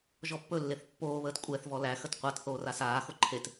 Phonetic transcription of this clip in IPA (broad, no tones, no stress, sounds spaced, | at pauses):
ʒ ɔ pː ɵ lː e θ pː oː β əː t kʷʼ ɛ θ v ɔ l æ x ə t qʷ a t θ oː r a s aː x o ǃʰ e t